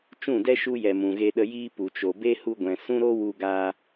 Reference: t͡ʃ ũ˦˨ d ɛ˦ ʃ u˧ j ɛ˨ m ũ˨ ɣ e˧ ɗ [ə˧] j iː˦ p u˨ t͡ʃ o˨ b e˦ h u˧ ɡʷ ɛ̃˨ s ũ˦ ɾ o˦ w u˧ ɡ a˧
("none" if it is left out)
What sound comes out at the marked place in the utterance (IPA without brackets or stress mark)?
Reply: ə˧